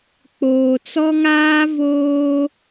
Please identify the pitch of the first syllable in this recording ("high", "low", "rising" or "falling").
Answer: low